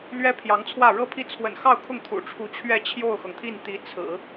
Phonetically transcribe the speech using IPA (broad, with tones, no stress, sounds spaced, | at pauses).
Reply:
l ɥ ɛ˥ pʰ j ɑ˧˥ ŋ t͡sʰ w ä˥˩ ɻ ɤ˥ pʰ i˥˩ t͡sʰ w ə̰˨˩ n x ɑ˥˧ ʊ̯ kʰ ʊ˥˩ ŋ t̪ʰ ṵ˨˩ ʈ͡ʂʰ u˧˥ t͡ɕʰ ɥ ɛ˥˧ t͡ɕʰ j o˥˩ ʊ̯ x ɤ˩ ŋ t̪ʰ i˥˩ n t̪ i˧˥ t͡sʰ ɹ̩˨˩˦